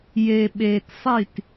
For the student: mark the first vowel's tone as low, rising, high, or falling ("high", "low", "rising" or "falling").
low